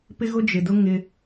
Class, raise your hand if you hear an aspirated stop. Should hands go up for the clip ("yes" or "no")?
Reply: no